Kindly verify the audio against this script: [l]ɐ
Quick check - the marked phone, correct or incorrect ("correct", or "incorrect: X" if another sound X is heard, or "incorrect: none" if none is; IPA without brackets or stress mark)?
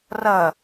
incorrect: r